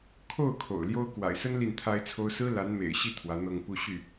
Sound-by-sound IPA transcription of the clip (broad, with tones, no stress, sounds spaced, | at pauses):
kʰ o˥˩ ʊ̯ kʰ o̰˨˩ ʊ̯ l j o˥ ʊ̯ k w a̰˨˩ ɪ̯ s ə˥ n l i˥˩ n t̪ʰ a˥ ɪ̯ t͡sʰ o˥ ʊ̯ s ɹ̩˥ l a˧˥ n m ḛ˨˩ ɪ̯ ɕ i˥˩ t̪ʰ w ä˧˥ n̪ ɤ˥˧ ŋ p u˥˧ ɕ y˥˩